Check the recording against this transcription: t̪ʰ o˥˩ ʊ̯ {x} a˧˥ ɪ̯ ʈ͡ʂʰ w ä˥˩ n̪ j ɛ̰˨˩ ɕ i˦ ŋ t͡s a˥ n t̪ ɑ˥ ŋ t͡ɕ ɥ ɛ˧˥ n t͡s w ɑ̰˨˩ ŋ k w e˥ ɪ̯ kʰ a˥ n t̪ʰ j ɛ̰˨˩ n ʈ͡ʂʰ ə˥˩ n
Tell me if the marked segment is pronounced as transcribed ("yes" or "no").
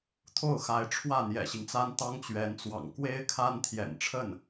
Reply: yes